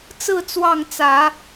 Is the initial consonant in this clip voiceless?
yes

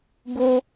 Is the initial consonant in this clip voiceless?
no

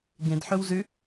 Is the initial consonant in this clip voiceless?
no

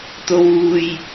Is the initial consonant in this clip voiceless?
yes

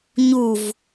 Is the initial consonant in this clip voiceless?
no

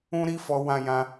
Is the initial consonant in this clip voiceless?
no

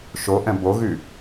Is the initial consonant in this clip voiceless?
yes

